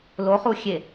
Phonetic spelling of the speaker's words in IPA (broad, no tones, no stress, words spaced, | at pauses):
loχuxʲe